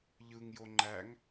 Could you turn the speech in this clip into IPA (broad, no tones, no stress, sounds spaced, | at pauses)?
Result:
ʎ ɯ ŋ j o ŋ͡ǃ æ ŋ